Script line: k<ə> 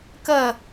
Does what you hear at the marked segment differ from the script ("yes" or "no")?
no